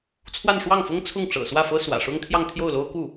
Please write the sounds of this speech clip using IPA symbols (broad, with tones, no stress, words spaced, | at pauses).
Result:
t͡sʰwa˥˧nʂwɑ˥˩ŋfʊ˥ŋ t͡sʰʊ˥˩ŋʈ͡ʂɤ̰˨˩swä˥˩fɤ˥ swä̰˨˩ʂʊ˥ŋ t̪ʰjɑ˥˧ŋt̪ʰjo˥˩ʊ̯lo˥ʊ̯ku˥˩